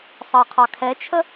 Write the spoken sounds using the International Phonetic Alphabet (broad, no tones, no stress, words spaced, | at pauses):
sˤɑqʰɑkʰɛt͡ʃʰə